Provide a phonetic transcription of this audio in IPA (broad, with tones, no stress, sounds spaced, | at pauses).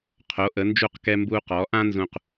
qʰ o˩˧ ʔ ə˩˧ n d͡ʒ u˧˩ q k ɛ˧ m b u˧ q ɔ˩˧ ʔ ã˥ n z ũ˧˩ q